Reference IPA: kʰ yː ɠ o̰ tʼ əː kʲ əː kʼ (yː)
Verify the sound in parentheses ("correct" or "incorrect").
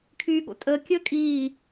incorrect